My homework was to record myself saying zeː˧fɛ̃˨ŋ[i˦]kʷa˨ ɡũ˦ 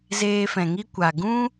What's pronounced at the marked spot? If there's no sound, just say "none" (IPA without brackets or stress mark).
i˦